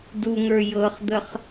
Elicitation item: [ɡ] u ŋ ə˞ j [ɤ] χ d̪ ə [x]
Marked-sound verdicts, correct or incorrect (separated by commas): incorrect, correct, incorrect